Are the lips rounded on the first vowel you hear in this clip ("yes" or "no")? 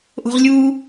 yes